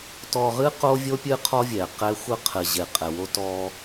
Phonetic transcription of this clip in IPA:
tɔ˨ʁɨ˦ qo˦vʲo˦pʲɨ˦ qʰɔ˦vʲɛ˨qɛ˦ xʷɘ˦qʰɘ˨ʑe˨ qʼɛ˨wo˦tɔ˦

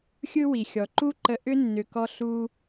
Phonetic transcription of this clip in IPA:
xʲɯ˦wi˨ xʲɔ˨ǃu˦ǃə˧ ʔʏ˦ nːʏ˧kɔ˦ ɬu˦

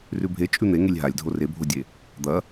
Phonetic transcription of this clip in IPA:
rʉbʱe t͡ʃʼʉn̪e ŋelʲɦalʲdʱo rebʱodʲe | d̪ɐ

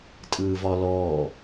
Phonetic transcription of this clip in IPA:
tʼɯːvɒlɔː

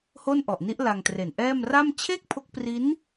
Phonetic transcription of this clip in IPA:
ho˥˩nʔɔ˨˩ʔni˦˥ʔ la˧ŋtre˨˩nʔɛː˥˩m ra˥˩m t͡ɕʰe˥˩k̚pʰo˦˥k̚pri˦˥n

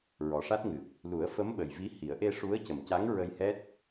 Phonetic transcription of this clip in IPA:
ɹɔ˨˩ʂa˦˥t̚ŋɨ˨˩k̚ | lu˨˩˦ə̯fə˧˥mɓə˨˩jvi˧˥ hi˨˩˦ə̯ ʔe˧ ʂu˧˥ə̯cə˨˩mca˧˥ŋ ɹə˧jhɛ˦˥t̚

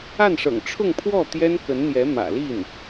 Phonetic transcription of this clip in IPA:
a˥˩nʂɤ̰˨˩ŋ ʈ͡ʂʰʊ˥˧ŋpʰwɔ˥˩ t̪jɛ˥nkə˧˥nn̪jɛ˧˥ mä̰˨˩li˥˩n

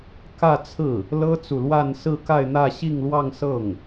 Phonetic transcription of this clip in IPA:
kä˥˧t͡sʰɹ̩˥˩ | lɤ˥t͡su˨lwa˥˧n sɹ̩˥˧ka˥˧ɪ̯n̪ä˥˧ ɕi˥˧ŋlwɑ˥˧ŋsɤ˥˩ŋ

